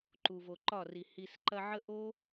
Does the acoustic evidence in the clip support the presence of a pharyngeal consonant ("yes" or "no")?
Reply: yes